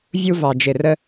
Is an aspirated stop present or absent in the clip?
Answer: absent